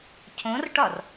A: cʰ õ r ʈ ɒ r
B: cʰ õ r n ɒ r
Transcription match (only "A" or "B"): A